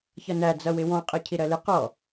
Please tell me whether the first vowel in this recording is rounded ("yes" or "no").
no